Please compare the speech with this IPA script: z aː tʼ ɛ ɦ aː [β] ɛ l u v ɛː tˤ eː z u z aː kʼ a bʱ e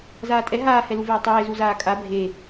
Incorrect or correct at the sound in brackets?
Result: incorrect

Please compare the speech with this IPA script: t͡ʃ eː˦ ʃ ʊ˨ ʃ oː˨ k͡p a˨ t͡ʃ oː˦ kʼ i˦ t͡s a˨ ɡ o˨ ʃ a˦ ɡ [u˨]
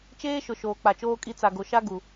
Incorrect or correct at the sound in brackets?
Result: correct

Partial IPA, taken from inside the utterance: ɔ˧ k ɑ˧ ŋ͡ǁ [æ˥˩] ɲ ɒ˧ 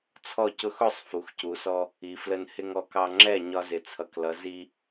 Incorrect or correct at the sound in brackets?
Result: incorrect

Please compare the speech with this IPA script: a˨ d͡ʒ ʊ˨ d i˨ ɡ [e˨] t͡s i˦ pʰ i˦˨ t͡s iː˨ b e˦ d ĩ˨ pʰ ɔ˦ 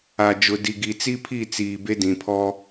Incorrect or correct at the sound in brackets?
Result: incorrect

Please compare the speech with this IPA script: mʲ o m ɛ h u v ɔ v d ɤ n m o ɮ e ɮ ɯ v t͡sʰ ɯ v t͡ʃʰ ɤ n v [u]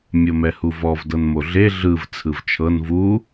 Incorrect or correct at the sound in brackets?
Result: correct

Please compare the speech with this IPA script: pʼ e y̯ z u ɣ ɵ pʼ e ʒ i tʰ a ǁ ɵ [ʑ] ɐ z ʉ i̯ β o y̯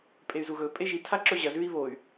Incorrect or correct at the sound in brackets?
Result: correct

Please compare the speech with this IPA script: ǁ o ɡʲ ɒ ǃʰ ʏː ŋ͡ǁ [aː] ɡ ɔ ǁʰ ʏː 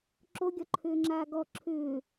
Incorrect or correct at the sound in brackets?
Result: correct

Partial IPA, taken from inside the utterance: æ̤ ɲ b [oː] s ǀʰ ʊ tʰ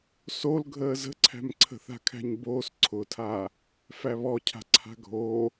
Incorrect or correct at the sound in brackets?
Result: correct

